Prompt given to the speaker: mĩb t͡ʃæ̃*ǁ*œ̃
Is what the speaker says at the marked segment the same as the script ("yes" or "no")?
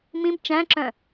yes